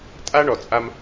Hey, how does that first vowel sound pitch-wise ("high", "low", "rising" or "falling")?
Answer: high